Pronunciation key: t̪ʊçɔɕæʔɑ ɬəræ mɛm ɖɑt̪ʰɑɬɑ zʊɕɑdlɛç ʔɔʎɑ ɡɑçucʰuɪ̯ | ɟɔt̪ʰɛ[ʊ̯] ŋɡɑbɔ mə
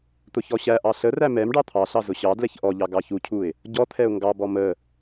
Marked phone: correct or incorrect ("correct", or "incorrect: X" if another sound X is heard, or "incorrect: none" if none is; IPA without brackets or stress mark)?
correct